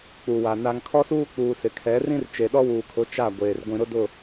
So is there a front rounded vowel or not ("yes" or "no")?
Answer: no